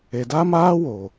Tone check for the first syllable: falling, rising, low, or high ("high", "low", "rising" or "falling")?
low